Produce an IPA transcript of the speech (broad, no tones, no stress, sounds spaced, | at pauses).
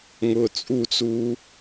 ŋ ʊː t͡sʼ u t͡s uː